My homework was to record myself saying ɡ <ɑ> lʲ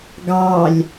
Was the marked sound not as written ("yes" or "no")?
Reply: no